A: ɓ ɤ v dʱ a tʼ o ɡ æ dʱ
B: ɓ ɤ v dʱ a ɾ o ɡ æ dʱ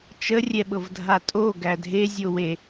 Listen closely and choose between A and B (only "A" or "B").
A